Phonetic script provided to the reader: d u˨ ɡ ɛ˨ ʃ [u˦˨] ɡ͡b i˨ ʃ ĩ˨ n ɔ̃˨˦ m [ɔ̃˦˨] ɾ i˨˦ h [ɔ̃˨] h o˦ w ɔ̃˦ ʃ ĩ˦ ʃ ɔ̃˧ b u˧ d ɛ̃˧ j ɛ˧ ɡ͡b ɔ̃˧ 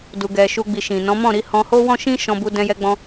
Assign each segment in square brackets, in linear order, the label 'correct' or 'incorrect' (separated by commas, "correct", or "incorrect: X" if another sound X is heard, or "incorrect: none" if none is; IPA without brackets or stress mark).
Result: incorrect: u˨, correct, incorrect: ɔ̃˧